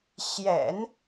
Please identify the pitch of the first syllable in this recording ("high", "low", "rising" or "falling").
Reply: low